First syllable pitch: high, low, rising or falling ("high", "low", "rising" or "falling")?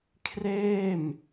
falling